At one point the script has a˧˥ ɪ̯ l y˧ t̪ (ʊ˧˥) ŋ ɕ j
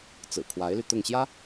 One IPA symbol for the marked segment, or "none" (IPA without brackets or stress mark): ʊ˥˩